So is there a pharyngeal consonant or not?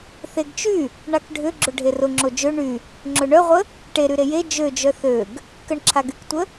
no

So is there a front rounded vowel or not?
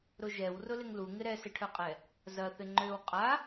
yes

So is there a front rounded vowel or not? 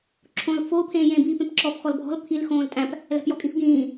no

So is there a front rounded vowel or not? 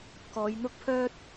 yes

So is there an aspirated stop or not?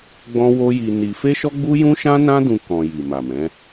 no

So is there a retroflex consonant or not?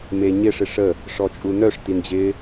yes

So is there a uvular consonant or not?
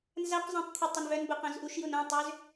yes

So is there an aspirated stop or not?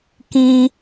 no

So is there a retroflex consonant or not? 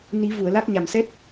no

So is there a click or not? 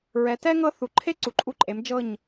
yes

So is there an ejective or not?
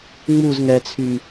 no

